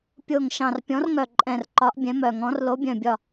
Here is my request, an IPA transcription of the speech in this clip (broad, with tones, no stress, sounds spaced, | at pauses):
pʲ o˨˩ ŋ ʃ ɑ̃˨˩ r pʲ ɔ̃˨˥ r ŋ œ˨˩ ǃʼ ɛ̃˨˩ r ǃ ɒ˨˥ ʔ bʲ ɛ̃˨˥ m œ˨˩ ŋ ɔ̃˨˥ r l o˨˥ bʲ œ̃˨˩ bʲ ɒ˨˩